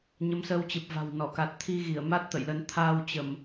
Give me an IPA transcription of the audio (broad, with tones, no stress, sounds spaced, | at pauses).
ɲ ə˨˦ m s əː˧ w t͡ɕ ɨ˨˩ p̚ v a̤˨˩ w n ɔ˧˩ k a˨˩ t̚ t̪ʰ i˧ ɣ i˧˩ ə̯ m a˦˥ t̚ t̪ ə̰˧˨ j l ə˨˦ n t̪ʰ aː˧ w t͡ɕ ə˧˩˨ m